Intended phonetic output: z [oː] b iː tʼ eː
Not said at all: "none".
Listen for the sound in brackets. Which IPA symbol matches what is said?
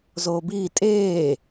oː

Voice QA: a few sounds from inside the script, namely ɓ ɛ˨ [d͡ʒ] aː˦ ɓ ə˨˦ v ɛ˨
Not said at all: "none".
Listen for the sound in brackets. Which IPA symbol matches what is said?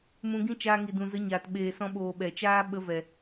t͡ʃ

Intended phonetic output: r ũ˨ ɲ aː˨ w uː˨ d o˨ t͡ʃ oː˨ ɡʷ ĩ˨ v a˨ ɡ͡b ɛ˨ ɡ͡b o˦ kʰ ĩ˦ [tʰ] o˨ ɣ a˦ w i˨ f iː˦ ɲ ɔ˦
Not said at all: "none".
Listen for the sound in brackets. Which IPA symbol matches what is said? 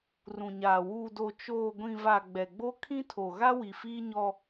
tʰ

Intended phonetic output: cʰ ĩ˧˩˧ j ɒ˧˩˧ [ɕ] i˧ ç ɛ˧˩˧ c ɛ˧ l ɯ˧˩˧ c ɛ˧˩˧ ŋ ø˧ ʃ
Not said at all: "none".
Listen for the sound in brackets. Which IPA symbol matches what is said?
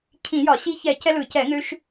ɕ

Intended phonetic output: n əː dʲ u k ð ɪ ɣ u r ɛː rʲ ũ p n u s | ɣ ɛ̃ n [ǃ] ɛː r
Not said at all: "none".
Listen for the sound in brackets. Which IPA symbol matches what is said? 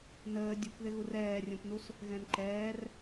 ǃ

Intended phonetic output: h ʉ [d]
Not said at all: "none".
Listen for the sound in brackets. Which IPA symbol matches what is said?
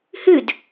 d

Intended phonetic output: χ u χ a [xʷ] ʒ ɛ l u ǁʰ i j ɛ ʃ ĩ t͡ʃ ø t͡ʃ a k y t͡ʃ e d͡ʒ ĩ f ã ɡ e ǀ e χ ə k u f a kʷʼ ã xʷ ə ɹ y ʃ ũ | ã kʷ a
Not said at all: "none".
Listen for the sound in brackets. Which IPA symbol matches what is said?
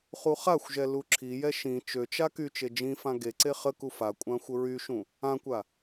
xʷ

